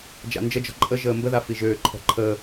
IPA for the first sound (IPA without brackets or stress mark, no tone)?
d͡ʒ